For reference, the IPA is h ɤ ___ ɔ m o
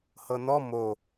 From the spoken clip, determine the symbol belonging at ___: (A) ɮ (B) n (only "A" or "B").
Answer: B